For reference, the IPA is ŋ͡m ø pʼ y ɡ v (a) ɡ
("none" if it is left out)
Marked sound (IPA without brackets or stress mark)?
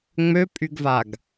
a